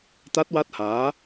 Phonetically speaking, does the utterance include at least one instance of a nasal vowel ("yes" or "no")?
no